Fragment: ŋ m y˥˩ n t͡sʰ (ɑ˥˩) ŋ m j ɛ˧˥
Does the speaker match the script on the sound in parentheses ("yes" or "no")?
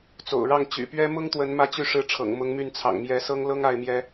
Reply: no